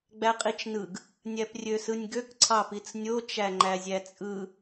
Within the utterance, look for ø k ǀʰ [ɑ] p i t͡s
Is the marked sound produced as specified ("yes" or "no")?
yes